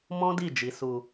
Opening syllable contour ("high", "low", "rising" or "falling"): high